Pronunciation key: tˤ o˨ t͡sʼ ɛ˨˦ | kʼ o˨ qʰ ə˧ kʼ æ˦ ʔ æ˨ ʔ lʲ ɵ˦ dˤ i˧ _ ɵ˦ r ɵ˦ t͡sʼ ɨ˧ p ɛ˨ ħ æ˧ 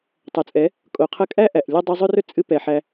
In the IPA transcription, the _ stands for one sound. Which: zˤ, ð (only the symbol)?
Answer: zˤ